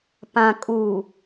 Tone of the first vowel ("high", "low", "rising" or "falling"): low